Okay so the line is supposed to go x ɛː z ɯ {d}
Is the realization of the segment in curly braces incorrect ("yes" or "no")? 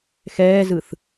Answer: yes